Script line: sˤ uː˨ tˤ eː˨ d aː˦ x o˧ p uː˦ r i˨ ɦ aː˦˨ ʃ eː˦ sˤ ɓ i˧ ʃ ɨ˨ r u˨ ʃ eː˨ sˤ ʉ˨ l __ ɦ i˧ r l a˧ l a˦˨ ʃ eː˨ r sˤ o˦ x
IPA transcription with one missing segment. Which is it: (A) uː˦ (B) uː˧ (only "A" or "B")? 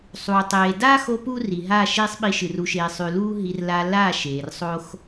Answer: A